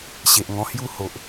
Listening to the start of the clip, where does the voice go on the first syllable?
low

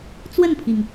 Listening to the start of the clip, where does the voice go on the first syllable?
falling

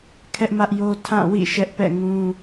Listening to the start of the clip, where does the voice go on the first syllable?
high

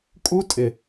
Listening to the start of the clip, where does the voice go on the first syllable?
high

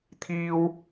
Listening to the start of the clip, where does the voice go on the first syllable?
high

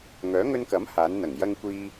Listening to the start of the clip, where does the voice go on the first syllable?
rising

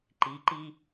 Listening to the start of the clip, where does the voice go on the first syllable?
rising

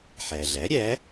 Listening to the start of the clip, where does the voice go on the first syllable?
low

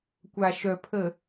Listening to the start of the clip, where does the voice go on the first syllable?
low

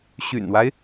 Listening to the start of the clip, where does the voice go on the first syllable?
low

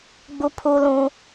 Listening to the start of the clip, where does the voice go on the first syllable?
high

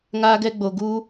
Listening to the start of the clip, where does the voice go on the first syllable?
high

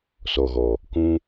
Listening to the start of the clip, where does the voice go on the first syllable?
low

